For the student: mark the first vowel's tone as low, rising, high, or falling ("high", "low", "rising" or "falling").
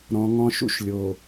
low